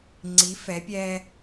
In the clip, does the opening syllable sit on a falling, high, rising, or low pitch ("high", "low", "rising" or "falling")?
rising